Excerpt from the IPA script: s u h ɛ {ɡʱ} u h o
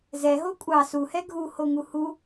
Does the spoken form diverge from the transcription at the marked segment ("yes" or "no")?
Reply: no